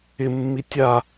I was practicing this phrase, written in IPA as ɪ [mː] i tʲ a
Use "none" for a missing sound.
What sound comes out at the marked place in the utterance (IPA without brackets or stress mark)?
mː